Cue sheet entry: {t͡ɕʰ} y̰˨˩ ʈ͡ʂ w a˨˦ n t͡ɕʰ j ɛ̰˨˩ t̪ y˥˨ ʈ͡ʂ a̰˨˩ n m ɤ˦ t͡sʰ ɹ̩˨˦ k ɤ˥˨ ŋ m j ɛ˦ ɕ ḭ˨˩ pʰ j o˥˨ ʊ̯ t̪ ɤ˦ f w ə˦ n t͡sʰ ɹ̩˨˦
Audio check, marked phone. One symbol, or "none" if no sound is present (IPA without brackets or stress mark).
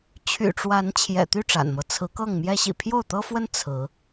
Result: t͡ɕʰ